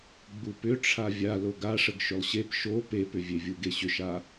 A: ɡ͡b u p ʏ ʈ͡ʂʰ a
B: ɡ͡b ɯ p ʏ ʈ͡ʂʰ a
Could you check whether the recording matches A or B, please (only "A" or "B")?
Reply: A